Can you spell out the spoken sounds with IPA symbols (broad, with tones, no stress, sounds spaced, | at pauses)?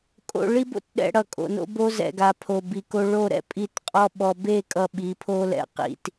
kʼ o̰˨ ɭ i˦ b o̰˦ t ɗ ɛ̰˨ ɽ ʌ˨ kʼ o̰˨ n o̰˦ b o˦ z ɛ̰˨ ɡ a˨ pʰ o˨ b i˨ k o˦ ɭ o˦˨ ɾ ɛ̰˨ pʼ i˦˨ t qʼ ɔ˦ ɓ ɔ˨ b e˦˨ kʼ ʌ˦ ɓ i˨˦ pʰ o˦ l ɛ̰˨ q ḭ˦ t